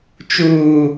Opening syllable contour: low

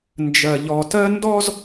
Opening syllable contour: low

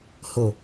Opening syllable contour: low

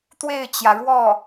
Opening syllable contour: falling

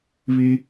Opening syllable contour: high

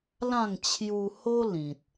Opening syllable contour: falling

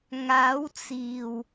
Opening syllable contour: rising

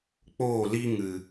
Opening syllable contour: falling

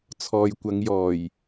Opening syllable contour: low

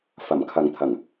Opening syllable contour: low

